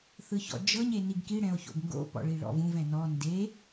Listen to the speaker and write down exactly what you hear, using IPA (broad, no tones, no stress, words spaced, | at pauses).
θɯçɔ̰d͡ʒɤɲ eniɡki ɽɛ̃o̯ço̰ɡŋɡo̰ pɔ̰ɭiɭɔ̰vũv ɛ̃nɔ nde